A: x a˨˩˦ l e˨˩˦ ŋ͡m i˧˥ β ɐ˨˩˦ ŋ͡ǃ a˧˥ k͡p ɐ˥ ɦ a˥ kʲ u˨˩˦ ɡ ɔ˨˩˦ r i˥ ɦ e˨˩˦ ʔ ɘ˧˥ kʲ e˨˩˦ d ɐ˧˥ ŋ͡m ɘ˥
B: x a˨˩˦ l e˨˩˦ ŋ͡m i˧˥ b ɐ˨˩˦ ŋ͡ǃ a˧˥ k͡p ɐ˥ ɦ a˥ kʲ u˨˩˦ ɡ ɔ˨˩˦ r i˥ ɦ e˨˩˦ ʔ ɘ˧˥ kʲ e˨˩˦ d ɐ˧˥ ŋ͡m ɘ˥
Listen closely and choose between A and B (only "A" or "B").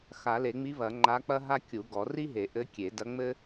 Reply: A